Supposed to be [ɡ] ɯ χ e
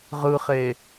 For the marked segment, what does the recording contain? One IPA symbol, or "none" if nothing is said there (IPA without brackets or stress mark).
ʁ